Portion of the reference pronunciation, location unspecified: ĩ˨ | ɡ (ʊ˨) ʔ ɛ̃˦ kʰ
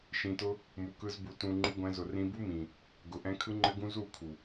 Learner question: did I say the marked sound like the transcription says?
no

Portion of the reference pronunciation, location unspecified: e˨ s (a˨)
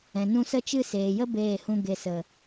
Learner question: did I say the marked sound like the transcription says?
no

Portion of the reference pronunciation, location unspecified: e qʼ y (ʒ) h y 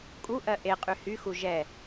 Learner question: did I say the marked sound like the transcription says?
no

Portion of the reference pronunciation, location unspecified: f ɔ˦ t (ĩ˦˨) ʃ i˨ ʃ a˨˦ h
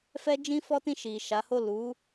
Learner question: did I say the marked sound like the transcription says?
yes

